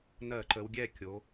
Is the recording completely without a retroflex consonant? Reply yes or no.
yes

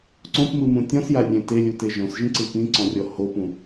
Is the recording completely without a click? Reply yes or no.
no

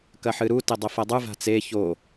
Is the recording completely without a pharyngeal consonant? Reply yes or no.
no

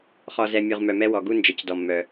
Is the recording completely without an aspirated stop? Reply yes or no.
yes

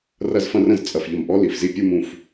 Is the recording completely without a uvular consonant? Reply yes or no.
yes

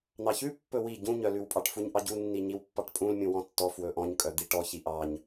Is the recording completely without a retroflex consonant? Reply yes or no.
no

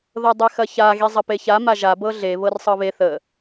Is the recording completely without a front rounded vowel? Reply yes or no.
yes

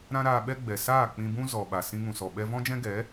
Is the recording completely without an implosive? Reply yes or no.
no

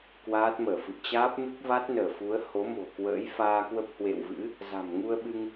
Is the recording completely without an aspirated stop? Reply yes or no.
yes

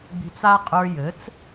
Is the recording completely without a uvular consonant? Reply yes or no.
no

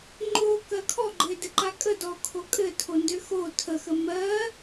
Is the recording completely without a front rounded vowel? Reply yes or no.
no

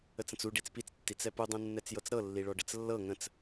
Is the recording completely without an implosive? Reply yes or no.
yes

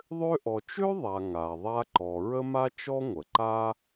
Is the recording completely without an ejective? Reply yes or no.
yes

